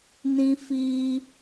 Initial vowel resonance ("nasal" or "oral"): nasal